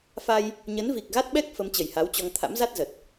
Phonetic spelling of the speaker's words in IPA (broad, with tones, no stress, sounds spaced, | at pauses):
f a˧ j | ɲ ə˨˦ n v i˨˩ k̚ ɣ a˦˥ t̚ ɓ ɛ˦˥ k̚ f ə˨˦ m t͡ɕ ə˨˩ j h a˨˦ w t͡ɕ ɔ˧ ŋ t̪ʰ a̰˧˥ m z a˦˥ t̚ z ə˨˩ t̚